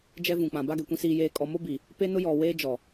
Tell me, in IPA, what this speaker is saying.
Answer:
d͡ʒ ɛ˦ v ũ˨ k͡p ã˨ b a˦ ɡ ɛ˨ kʷ ĩ˦ s iː˦ j eː˦ kʼ ɔ˦ m o˦ b iː˨ | p e˦ n ʊ˦ j ɔ˨ w eː˦ d͡ʒ ɔ˨

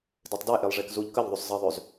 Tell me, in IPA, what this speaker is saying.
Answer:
d e tˤ d e ʔ e lˠ ʐ e k z u ʎ k ə ʎ ðˤ y sˤ z ə ðˤ ø z

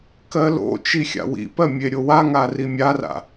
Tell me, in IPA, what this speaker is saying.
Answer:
k ɜ l o̰ t͡ʃ i xʲ a̰ w ḭ p ɜ mʲ e ɾʲ o w a ŋ a r i mʲ a r a̰

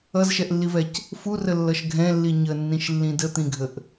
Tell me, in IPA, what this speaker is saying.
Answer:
ʌ z ʃ ɛ ʔ lː i v ɛ c | f u r ə lː ʌ ʃ ɡʱ ɛ̃ lː i ɲ ə nː ĩ ʃ lː ĩ d ə t̪ ĩ ɡʱ ə ʔ

